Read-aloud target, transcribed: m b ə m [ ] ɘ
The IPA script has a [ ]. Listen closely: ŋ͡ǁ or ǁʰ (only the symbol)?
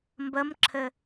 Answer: ǁʰ